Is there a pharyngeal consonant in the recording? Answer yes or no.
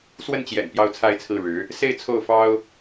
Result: no